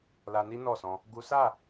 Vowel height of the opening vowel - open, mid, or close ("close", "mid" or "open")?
open